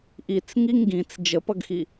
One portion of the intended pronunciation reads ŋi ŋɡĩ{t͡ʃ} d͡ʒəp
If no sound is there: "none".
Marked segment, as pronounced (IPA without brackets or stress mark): t͡s